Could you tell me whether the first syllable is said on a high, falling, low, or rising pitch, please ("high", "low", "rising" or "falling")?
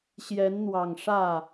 rising